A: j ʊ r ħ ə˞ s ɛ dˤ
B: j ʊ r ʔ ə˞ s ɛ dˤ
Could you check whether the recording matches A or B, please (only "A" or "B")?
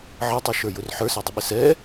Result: A